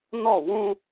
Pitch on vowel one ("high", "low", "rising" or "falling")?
falling